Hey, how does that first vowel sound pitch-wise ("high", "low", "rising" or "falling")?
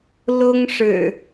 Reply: high